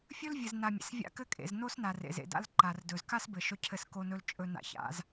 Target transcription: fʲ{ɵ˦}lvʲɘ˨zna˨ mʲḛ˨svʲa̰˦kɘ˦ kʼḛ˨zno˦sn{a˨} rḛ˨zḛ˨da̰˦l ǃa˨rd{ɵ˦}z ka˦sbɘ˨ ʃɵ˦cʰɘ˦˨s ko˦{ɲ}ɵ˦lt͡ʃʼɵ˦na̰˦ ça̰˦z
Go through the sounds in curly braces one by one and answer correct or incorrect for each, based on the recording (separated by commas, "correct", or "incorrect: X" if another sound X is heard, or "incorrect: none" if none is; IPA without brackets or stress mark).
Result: correct, correct, incorrect: ɵ˨, incorrect: n